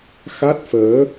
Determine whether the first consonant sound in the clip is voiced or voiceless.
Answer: voiceless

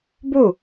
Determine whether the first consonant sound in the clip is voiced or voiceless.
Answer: voiced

